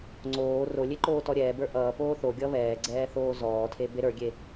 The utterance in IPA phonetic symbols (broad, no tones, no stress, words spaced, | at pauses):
ŋ͡ǀoː rolʲe ǃoːtɔɾʲɛːbə˞ ʔʌːpoː θoɡʲʌ βɛːɡ͡ǀɛː θoːzɔːtʰe beɾə˞ɡʲe